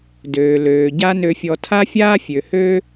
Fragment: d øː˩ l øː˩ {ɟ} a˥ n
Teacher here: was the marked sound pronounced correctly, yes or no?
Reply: yes